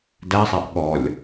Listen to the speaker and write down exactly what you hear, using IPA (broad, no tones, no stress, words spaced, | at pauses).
dæsˤæʔ ɠɔlʲ